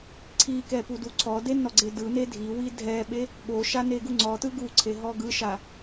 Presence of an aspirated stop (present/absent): present